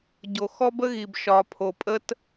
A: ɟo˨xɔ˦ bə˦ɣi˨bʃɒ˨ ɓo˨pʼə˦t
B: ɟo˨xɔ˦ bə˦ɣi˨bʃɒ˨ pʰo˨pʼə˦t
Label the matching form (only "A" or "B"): B